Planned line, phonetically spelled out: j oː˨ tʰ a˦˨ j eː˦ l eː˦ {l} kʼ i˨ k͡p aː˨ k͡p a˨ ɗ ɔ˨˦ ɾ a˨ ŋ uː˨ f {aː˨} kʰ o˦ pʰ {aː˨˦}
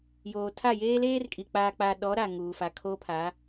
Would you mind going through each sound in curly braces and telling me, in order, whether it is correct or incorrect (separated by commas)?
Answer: incorrect, incorrect, correct